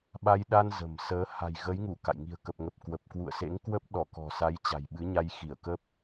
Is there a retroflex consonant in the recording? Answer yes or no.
no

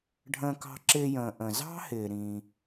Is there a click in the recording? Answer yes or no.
yes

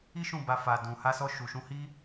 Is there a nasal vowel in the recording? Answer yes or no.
yes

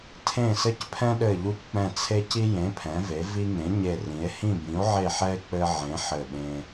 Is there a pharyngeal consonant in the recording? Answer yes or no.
yes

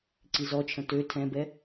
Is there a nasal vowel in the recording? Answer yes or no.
yes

